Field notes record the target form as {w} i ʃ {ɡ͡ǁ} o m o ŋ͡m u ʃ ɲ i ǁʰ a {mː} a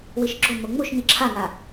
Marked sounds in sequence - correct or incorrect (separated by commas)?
correct, correct, incorrect